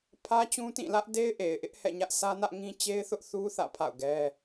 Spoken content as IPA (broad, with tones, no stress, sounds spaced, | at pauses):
pʰ ä˦ t͡ɕ ũ˦ t ĩ˦˨ l ä˦ ʔ d e˦ ɪ̯ ʔ e˨ ɪ̯ ʔ ɪ˦ ʔ h ɛ̰˦˨ ɲ ä˦ ʔ sʰ ä˦ n ä˦ ʔ ŋ ĩ˦ t͡ɕ e˦ ɪ̯ θ ʊ˦ ʔ θ u˦ θ ä̰˦˨ pʰ a̰˦˨ ʊ̯ ɡ ɛ˦